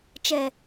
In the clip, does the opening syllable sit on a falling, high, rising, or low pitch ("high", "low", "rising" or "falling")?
low